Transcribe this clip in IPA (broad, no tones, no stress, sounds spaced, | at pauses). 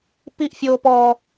p i ʔ fʲ oː p ɔ